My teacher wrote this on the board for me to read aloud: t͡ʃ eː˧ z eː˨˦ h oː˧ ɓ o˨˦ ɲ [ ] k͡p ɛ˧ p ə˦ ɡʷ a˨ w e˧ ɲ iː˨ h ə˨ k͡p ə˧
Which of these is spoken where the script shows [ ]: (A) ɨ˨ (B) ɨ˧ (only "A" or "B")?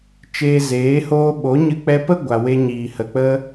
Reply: B